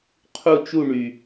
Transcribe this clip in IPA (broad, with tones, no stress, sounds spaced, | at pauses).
qʰ u˥˧ t͡ʃ u˥˧ ɳ y˨˩